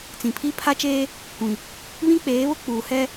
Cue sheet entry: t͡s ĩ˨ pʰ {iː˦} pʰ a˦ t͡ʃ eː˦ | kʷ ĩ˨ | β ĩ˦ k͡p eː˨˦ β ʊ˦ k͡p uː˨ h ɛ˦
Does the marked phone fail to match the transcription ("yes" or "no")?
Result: yes